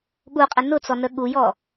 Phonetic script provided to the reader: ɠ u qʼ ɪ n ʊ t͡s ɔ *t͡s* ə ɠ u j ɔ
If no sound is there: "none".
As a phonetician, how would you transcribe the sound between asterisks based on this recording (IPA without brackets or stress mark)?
n